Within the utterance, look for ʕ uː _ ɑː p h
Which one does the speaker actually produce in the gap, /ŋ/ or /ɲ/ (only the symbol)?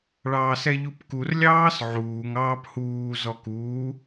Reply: ŋ